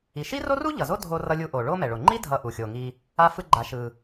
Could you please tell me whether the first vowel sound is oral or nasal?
oral